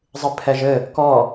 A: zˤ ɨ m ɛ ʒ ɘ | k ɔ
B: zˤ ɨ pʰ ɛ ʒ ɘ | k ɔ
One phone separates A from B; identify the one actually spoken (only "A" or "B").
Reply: B